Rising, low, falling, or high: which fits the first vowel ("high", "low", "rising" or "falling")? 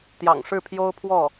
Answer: low